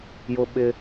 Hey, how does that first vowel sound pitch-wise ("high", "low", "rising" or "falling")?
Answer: high